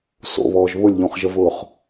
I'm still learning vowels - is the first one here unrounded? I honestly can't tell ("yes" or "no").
no